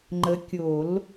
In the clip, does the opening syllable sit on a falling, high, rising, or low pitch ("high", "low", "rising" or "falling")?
rising